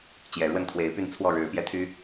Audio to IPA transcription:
t͡ɕjɛ˨˩ɻwə˥˨nt̪ʰwe˨˦ɪ̯py˥˨n t͡sʰwɔ˥˨ɻɻ̩˨˦pjɛ˦t̪ʰy˦

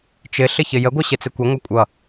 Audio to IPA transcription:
t͡ʃɪ ɬɪçɪjəɡʷʌ ɕɪt͡sɪkʷɪŋʷʌ kʷʼʌ

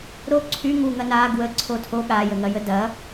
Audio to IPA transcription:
ɾo ǀʰy ŋuŋɐ na ɡwəǀʰo tʰo ɠajəŋɐjə dɐ

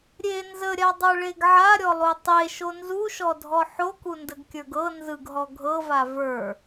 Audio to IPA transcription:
ɾʲe nzəɾʲadˤə˞ɭeɡ ʕaɾʲɔlˠu tˤeʃo nzuʃɔdʱɔ ħokundəɡkʲə˞ɡ ɤ nzɯɡɦɔ ɡʱɤva və˞

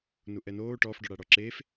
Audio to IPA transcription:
nuʔɛnoː ʈɔf ɖɔɽaɽɔǁeːf

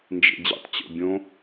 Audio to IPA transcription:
nd͡ʒḛd͡ʑḛtˤ t͡ɕo̰bʲõ

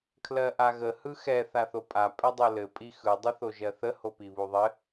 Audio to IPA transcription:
kʰlɜʔaɣə hɯxɛ θaθopʼa pʼɛdˤolɘ pʼixɯ dˤɯθoʒɜθə hopiβuðˤɘ

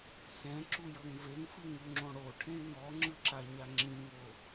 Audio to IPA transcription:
sɛ̃ǁu jɤŋveŋfɯ ŋuŋ͡ǁõɽoʈʰẽ ŋɔŋ͡ǁɯ ǁaɲaŋ͡ǁĩŋo

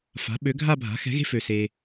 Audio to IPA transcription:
fa̤˩˥ɓø˩˥ ɡʱa˥˧bʱa̤˩˥xɛ̤˩˥ɣe̤˥˧ fø˨se˨

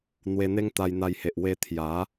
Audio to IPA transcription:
n̪we˧n̪e˦ŋ t̪a˧jn̪a˧jhe˨ʔ we˧t̪ʰja˨˦

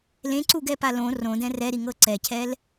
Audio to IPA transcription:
lẽǀuɡɛpa lõ rõdɛ̃ rɛɾiŋɤ ǀɛcʰɛl

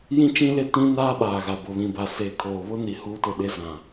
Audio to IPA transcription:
jĩ˦t͡ʃĩ˦le˦ tĩ˦naː˦ ɓaː˨ɣa˨ bʊ˨βĩ˨ba˨ seː˨kʰoː˨ βʊ˦ni˨ huː˦tʊ˦˨ ɗe˦zã˨

